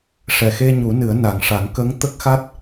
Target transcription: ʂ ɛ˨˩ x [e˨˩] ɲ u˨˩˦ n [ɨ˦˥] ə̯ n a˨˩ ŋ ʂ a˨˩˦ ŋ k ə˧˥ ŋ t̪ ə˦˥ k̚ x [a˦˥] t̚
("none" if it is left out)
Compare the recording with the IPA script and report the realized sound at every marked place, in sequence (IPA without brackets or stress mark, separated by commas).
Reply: e˧, ɨ˨˩˦, a˦˥